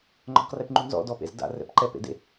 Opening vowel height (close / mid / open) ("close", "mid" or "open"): mid